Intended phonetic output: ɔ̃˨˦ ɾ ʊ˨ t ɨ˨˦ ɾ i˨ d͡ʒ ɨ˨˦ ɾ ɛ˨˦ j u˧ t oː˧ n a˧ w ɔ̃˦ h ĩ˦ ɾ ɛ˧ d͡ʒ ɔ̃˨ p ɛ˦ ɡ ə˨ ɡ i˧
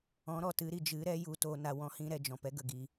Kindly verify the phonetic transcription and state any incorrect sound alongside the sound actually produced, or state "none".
ʊ˨ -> ɔ˨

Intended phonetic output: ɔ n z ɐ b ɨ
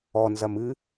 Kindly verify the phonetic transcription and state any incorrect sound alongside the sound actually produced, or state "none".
b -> m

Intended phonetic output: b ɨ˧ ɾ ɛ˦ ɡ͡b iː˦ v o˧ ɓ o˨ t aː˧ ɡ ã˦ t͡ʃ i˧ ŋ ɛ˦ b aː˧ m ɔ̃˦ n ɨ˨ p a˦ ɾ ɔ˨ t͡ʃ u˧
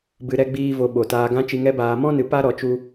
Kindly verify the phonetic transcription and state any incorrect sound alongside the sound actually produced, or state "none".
none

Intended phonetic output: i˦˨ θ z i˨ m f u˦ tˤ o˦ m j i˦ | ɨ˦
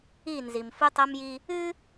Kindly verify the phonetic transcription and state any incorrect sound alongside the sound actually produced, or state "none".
θ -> n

